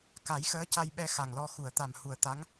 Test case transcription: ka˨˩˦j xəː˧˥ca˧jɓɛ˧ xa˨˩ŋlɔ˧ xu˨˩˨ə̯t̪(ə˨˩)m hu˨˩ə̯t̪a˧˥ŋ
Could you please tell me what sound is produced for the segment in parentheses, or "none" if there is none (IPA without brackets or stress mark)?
a˨˩